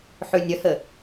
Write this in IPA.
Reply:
ħʉnʲəhə

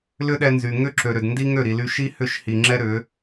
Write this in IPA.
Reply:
lʏ˦ɗɛ˧nzy˨ ŋʏ˦ ǁø˨ɾʏ˨d ndi˦ ŋø˦˨ɾi˨ly˧ ʃi˦hʏ˦˨ʃhi˨ ŋ͡ǁɛ˦ɾʏ˨˦

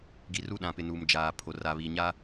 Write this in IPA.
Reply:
ɡi˨ru˦ɗã˨pɪ˨ nu˨md͡ʒaː˨ pʰo˨ra˨βiː˨ ɲa˦

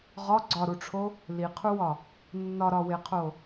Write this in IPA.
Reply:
ʁɒ ɡ͡ǀɒɾuʈ͡ʂʰo | liqʰuwɒ | nːɒɾɒweqʰo

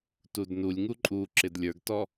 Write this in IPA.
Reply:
tudnulʲŋu ǃʼu ǁɪdlʲə˞ɡtɔ

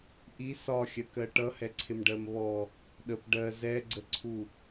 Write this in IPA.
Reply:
ʔi sɒxʲɜkɜ ʈʌhɛǀʰɪm ɖɜmβɔ | ɗəp ɖɜ zɛɡ͡ǀəǀʰu

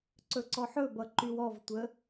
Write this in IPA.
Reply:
ǀɵǀɔħɵbʌ ǃywɔvtʷə

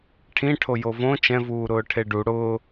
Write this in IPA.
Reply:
ʈʰĩʈʰo jovõ t͡ʃɛ̃vuːɾʊː ʈʰeɖu ɽʊː

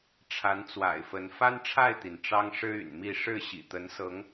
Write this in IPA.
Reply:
ʈ͡ʂʰa˨˦nt͡swa̰˨˩ɪ̯fə˨˦n fa˦nʈ͡ʂʰa˥˨ɪ̯t̪i˩n ʈ͡ʂɑ˦ŋ ʂɻ̩˦y̰˨˩nmi˥˨ ʂɻ̩˥˨ɕḭ˨˩t̪ə˨˦n sɤ˨˦ŋ

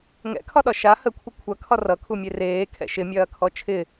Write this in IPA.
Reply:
ŋɛ̰kʰɒɗɒ ʃa həkʷʰə kʷʰɐkʰɒ rʌkʰumʲe reːkʰɛ̰ ʃɪmʲɐːkʰɔ t͡ʃʰɪ

